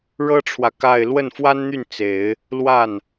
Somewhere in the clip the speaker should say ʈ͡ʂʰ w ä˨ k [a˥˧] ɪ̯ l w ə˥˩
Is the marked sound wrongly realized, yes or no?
no